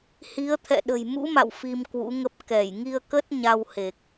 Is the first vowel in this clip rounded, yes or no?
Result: no